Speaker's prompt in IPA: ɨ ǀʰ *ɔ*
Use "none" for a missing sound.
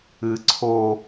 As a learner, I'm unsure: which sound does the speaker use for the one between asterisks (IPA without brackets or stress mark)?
o